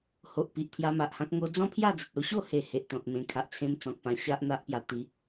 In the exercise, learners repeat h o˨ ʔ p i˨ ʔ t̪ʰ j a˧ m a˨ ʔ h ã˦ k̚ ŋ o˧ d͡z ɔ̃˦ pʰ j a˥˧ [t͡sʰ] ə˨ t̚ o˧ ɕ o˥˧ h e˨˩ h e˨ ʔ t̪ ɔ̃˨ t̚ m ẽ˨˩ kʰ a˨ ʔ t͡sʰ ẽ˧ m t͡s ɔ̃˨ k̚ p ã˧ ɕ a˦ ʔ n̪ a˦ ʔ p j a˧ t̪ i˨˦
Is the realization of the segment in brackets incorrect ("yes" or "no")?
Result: yes